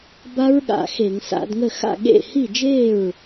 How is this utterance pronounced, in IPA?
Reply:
b a˦˥ ɹ ɠ a̰˧˩˧ x e˧˩˧ ŋ s a̰˧˩˧ d ŋ ə˥˩ x a̰˥˩ ɠ ḛ˥˩ h i˥˩ d͡ʒ e˥˩ ɹ

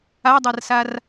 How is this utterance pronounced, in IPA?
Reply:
a dˤ a r s a r

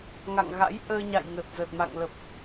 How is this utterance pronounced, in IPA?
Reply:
ŋ a̰˧˨ ŋ ɣ a̰˧˥ j ʔ əː˧ ɲ a̰˧˨ j ŋ ə˨˩ t̚ z əː˨˩ t̚ m a̰˧˨ ŋ l ə˨˩ p̚

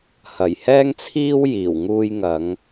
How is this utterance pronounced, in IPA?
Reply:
h ɐ˨˩ j h ɛː˥ ŋ t͡sʰ iː˥ w j iː˨˩ w ŋ uː˧ j ŋ ɐ˨˧ ŋ

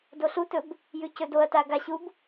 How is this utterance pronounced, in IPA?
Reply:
d o ɬ u t ɵ b | j ʉ c ɵ d o ɐ̯ t a ɡ a ɕ u b

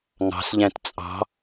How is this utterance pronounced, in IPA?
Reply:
ŋ ɑ̤ s ʎ æ̃ t t͡sʼ ɑ̤

